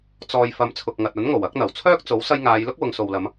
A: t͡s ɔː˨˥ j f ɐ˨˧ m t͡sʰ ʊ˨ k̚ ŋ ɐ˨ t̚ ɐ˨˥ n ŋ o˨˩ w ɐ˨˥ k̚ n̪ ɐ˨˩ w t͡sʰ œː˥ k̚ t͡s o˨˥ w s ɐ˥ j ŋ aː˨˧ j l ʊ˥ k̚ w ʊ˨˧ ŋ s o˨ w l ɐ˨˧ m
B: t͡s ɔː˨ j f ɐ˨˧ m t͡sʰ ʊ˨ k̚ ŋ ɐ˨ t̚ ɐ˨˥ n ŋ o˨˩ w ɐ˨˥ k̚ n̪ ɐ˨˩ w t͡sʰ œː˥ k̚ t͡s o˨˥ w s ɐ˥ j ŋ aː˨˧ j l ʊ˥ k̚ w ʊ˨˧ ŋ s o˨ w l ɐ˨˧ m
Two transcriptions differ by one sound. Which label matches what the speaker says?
B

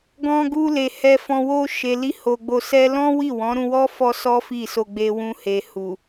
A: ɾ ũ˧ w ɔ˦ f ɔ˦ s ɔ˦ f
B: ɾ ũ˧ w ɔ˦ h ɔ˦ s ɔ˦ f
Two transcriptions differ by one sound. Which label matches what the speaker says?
A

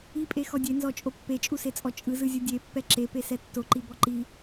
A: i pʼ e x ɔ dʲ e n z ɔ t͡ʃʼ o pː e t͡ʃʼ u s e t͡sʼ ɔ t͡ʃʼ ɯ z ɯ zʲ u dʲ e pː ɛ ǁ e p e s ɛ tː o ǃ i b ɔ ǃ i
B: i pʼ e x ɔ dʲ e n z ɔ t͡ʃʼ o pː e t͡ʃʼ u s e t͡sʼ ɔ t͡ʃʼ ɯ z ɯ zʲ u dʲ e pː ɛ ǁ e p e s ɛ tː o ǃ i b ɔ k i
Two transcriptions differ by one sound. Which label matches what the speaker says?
A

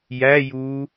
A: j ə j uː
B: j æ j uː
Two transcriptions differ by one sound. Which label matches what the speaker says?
B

